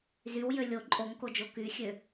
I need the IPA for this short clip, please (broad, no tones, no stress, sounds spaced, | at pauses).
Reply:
z y w j ø lʲ o ǃʼ o ŋ k o d͡ʒ o k y xʲ ø